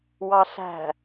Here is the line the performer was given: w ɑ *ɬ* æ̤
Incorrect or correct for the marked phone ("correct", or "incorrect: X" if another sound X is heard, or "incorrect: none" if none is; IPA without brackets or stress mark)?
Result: correct